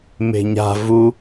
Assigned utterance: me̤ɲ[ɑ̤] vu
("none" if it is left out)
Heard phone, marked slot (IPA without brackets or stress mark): a̤